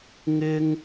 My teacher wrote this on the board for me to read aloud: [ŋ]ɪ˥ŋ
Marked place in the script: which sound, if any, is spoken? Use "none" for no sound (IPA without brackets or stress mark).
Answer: ŋ